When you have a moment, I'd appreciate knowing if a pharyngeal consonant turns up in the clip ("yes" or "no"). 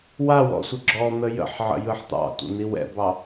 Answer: yes